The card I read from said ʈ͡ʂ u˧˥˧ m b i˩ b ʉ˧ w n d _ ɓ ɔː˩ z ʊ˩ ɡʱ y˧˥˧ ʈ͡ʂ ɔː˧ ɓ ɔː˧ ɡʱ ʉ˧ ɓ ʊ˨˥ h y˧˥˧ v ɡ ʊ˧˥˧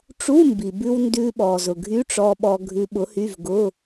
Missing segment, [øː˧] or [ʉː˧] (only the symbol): ʉː˧